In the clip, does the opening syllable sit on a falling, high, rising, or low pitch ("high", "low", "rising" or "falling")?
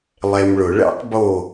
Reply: low